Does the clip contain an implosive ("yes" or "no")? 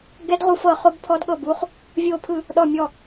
yes